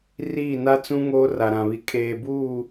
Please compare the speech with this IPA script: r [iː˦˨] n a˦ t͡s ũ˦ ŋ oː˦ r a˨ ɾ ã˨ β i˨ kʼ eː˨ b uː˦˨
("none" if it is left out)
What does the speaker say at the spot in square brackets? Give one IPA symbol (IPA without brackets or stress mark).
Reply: iː˦˨